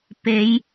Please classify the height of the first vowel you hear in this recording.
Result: mid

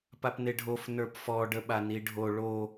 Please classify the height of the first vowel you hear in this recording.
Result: low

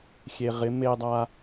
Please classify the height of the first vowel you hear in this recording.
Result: mid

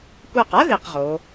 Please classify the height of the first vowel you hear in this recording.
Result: low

